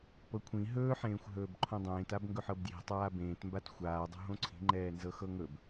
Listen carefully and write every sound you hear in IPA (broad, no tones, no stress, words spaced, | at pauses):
pɤkʷʰĩ ɦɵːħẽːxʷ ɦɵːbǃʰõdˤẽːtab ŋɡɵħɤbdji̤ tˤaːbẽːtmbat xʷaː dˤo̤ɦõǀʰi̤ŋ͡ǃɛː nzɤxɤŋɵb